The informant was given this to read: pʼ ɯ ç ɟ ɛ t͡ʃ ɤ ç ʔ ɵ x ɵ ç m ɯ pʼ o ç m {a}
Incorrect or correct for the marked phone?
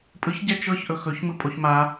correct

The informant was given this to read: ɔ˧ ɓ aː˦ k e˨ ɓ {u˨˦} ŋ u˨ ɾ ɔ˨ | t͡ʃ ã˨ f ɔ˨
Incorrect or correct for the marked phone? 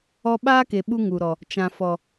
incorrect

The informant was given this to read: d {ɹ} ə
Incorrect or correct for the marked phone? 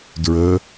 correct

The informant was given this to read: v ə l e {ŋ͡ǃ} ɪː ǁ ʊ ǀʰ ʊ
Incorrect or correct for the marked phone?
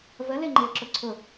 correct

